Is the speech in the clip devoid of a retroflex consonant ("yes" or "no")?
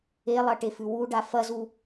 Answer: no